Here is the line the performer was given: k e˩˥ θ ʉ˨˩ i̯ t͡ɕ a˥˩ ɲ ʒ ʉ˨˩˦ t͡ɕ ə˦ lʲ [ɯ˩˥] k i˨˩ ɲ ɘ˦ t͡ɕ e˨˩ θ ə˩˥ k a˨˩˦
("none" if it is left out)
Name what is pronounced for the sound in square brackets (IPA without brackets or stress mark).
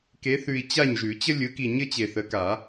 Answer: ɯ˩˥